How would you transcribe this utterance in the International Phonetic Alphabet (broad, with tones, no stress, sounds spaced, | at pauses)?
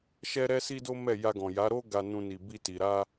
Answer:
ʃ ɛ˦ ɾ ɛ˦ s i˦ d o˦ m ɛ˦˨ j a˧ ɡ ɔ̃˨ j a˨˦ ɾ o˦ ɡ a˧ n ũ˧ n i˨ b i˧ t i˨ ɾ a˧